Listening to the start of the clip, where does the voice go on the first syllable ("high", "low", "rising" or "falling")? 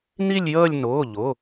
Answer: falling